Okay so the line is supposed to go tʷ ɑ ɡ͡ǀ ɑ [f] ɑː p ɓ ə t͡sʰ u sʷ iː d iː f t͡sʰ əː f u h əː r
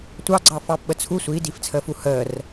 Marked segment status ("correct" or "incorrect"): correct